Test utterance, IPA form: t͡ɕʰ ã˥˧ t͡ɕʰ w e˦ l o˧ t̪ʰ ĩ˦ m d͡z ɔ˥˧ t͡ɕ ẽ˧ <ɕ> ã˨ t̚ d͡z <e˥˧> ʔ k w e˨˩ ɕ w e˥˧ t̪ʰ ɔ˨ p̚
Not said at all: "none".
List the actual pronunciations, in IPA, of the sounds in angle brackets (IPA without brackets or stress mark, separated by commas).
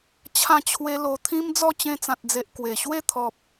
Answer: t͡s, e˨